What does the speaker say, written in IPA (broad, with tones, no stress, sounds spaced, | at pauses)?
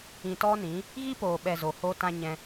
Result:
ĩ˧ t ɔ˦ n ĩ˨˦ | ɣ i˦ p oː˨ ɓ ɛ˨ z o˨ h oː˦ t ã˦ ɲ ɛ̃˧